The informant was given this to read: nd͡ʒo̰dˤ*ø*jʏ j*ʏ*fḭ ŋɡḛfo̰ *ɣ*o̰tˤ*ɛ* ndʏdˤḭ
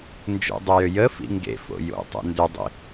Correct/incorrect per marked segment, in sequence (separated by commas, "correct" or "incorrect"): correct, incorrect, incorrect, incorrect